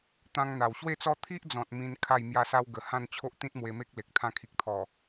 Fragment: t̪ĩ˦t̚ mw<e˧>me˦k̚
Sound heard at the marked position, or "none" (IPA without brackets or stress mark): e˧